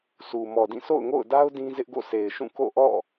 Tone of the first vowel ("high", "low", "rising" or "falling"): low